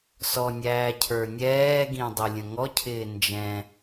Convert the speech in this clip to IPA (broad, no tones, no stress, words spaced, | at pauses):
sɔnʲæː cʰə˞nʲɛːɡĩ dˤɪlʲə̃ŋɔcʰɪː nd͡ʒɛ̃